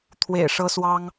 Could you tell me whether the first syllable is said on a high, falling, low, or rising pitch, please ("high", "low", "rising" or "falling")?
low